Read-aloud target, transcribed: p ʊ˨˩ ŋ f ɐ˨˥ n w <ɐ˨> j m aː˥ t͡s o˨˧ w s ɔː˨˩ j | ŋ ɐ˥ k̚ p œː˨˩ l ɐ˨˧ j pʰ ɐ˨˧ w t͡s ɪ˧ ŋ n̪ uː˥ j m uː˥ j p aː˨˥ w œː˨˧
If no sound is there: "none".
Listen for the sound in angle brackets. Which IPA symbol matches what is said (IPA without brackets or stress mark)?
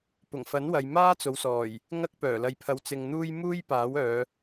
ɐ˨